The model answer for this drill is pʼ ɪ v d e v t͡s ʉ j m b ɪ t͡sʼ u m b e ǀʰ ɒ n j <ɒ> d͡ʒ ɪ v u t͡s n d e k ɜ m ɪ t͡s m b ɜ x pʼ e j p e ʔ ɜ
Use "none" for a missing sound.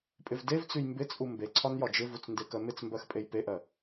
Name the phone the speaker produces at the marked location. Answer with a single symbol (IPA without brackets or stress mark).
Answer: ɒ